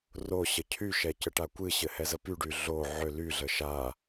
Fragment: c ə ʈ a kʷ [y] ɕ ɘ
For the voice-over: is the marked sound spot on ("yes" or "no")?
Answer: no